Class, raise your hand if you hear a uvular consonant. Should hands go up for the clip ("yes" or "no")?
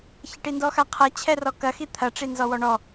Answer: yes